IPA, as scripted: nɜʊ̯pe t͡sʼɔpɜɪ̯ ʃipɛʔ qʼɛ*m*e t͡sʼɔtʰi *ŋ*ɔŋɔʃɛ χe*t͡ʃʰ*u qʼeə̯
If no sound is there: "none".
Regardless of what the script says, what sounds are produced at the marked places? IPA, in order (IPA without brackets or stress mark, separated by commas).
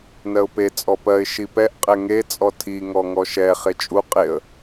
ŋ, ŋ, t͡ʃʼ